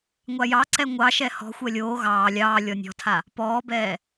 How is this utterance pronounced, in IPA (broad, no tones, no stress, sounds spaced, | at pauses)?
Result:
ŋʷ a j ɑ ǀ ɛ ŋʷ ɑ ʃ ɛ h ɔ̤ xʷ ɛ lʲ oː ɣ ɑː lʲ ɑː lʲ ɔ nʲ ɔ̤ tʰ a | p ɔː b ɛː